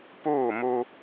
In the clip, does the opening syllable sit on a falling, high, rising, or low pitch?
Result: falling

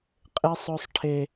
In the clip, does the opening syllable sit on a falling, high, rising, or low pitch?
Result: high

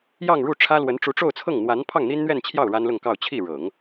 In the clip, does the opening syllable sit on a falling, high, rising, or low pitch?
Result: falling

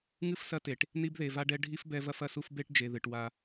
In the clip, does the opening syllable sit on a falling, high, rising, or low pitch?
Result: high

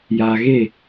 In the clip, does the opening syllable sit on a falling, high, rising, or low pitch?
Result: low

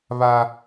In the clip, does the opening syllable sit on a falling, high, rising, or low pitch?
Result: high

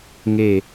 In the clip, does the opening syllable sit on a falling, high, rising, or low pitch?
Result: falling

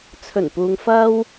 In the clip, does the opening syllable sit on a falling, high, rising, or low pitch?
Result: low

